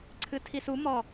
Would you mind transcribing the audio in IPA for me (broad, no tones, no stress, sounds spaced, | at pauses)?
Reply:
ǀʰ ɨ tʰ i s u m ɔ